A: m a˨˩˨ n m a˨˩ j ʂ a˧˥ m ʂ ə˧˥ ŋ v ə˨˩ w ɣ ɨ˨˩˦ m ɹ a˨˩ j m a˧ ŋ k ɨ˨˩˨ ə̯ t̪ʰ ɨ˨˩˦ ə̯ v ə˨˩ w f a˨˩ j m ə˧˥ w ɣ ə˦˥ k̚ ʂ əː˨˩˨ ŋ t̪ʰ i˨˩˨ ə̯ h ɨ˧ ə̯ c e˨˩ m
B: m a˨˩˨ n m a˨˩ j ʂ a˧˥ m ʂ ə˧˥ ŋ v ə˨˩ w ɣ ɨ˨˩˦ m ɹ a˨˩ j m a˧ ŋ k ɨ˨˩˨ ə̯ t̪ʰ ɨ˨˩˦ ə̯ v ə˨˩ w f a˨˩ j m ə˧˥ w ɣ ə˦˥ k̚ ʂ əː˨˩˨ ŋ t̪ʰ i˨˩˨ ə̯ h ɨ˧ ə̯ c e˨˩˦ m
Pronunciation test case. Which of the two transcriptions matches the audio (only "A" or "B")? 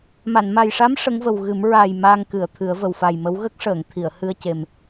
A